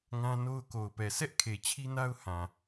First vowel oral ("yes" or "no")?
no